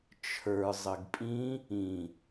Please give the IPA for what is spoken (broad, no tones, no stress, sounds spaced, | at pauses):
t͡ʃʰ ə˞ zˤ ə ɡ pʼ ĩ | ĩ